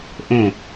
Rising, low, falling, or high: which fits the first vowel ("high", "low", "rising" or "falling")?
falling